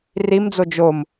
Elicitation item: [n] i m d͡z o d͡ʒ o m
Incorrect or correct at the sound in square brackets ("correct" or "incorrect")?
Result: incorrect